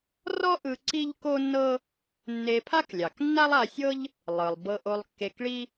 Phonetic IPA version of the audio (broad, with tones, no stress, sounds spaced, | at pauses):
r ɔ˥ ʔ ɯ˧ ǀ i˥ ʎ k o˥ nː ɤ˥ | nː e˧ pʰ a˥ k lʲ ɑ˩ k nː a˥ lˠ a˧ sʲ ɤ˥ ʎ | lˠ ɯ˩ lˠ b ɤ˧ ʔ o˧ lˠ kː e˧ k ɭ i˥